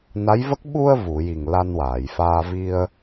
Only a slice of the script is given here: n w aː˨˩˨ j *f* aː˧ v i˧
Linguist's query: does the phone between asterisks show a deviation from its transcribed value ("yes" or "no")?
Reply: no